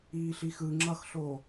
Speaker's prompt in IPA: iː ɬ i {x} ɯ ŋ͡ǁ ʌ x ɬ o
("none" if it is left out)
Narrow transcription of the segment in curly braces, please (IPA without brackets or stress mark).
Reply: x